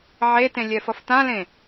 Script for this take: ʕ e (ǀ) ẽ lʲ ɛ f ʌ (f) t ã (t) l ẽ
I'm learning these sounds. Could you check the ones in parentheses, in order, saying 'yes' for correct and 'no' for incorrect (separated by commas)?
no, yes, no